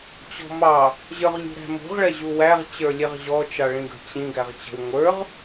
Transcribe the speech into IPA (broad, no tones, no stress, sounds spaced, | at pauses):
t͡ɕ ɔ̤ m ɑ | ʑ ə˞ ʁ lʲ ṳ ɾ æ̤ m ṳ ʁ ɭ ɛ ʑ u w æ ʁ t͡ɕ ə˞ lʲ ɛ ʁ ʑ ɔ t͡ʃ ɑ ɭ ĩ ɡ ə̤ t͡ɕ ĩ ɡ æ ʁ t͡ɕ ə̤ w ŋʷ ə˞ ʁ